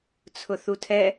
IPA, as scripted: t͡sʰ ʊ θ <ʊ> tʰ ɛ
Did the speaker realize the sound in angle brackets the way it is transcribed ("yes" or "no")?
no